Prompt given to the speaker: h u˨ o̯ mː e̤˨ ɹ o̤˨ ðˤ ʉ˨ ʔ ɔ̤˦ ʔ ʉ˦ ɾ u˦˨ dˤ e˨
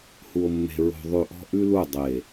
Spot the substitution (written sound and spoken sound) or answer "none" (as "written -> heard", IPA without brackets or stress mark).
ɾ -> l